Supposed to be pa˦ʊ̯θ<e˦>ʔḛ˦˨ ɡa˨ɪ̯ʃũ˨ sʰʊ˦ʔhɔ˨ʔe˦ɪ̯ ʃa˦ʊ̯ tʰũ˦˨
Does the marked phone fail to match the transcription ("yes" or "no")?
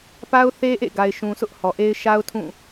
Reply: no